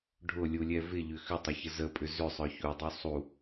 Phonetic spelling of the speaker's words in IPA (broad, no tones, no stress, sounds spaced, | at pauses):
ɖʱ ʊ lʲ u lʲ ɛ v ɪ ʎ ʏ x ʏ tˤ ɐ ç ə z ə pʼ ʏ z ʏ sˤ œ ç u dˤ y sˤ u